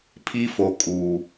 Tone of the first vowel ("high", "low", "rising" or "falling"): high